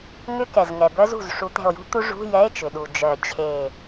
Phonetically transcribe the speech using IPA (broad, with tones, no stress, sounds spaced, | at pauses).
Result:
ŋ ʏ˦˥ k ɛ˩ z ŋ ɛ˩ b œ˦˥ z ṳ˧˩ z ʂ u˨˩˦ t̪ ɛ̤˧˩ o̯ j ṳ˦˥ t̪ u˦˥ ʐ ṳ˧˥˧ j ɛ˧˥˧ e̯ t͡ʃ ʏ˩ ɗ u˩ d͡ʒ œ˨˩˦ t͡ɕʰ e˧˩